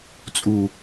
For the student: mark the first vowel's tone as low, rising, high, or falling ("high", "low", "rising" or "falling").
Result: low